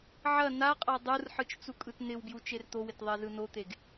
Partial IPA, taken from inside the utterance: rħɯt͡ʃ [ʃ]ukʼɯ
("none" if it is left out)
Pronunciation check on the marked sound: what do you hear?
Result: t͡s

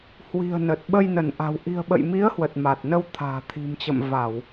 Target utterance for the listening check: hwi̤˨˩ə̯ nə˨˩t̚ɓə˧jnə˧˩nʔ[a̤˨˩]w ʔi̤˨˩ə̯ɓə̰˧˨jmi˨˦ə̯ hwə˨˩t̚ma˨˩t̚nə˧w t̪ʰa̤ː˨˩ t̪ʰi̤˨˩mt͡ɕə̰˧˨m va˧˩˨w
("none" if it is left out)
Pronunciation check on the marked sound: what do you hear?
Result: a̤˨˩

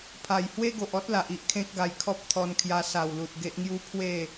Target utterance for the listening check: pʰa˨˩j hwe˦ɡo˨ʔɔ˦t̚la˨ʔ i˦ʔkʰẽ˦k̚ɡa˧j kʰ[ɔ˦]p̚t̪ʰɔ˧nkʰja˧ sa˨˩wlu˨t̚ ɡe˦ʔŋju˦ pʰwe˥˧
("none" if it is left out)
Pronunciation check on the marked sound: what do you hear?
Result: ɔ˦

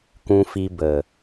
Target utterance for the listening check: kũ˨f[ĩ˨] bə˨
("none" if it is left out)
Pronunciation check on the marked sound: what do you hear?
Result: i˨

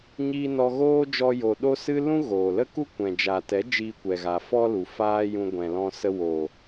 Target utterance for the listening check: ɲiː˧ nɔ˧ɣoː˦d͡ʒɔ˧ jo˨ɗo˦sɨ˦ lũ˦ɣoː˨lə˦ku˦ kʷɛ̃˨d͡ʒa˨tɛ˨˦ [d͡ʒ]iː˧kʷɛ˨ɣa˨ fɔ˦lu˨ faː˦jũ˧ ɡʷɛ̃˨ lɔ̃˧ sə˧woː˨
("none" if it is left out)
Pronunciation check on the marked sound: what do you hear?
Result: d͡ʒ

